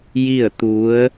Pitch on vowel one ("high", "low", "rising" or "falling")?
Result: falling